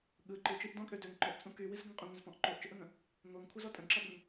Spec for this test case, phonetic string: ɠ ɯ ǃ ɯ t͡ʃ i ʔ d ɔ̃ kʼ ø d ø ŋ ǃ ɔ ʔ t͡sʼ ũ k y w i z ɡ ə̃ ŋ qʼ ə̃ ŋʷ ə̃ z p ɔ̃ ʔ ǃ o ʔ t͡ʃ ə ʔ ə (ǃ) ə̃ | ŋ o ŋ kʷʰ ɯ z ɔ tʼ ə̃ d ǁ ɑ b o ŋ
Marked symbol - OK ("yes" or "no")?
no